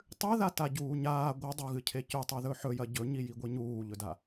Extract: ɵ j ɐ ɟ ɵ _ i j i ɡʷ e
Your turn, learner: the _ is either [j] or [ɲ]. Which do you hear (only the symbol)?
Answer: ɲ